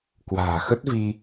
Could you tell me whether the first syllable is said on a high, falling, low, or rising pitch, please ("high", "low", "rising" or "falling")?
low